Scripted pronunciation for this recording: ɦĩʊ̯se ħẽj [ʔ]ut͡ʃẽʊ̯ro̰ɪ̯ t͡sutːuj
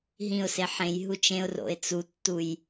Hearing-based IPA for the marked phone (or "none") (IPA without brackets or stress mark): ɦ